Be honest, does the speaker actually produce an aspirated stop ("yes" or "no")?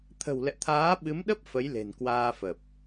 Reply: yes